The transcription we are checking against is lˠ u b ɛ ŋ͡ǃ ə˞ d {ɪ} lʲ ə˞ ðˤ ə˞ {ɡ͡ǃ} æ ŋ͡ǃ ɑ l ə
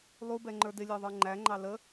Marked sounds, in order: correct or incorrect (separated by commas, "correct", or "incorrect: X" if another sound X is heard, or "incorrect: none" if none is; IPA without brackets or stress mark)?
correct, incorrect: ŋ͡ǃ